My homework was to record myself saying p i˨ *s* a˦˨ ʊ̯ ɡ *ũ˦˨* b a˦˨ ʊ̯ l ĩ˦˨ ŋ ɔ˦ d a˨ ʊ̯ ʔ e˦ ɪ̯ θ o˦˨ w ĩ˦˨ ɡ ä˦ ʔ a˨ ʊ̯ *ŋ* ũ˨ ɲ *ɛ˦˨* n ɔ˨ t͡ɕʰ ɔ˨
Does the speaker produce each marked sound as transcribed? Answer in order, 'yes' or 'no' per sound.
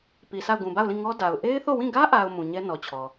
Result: yes, no, no, no

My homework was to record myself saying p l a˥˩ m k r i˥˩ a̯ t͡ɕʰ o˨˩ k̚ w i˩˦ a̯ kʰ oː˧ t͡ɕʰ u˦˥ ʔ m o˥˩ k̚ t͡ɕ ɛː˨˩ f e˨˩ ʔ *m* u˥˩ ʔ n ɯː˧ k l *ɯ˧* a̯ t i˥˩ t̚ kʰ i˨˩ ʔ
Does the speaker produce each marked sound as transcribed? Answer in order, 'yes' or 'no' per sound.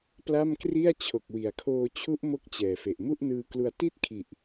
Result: yes, no

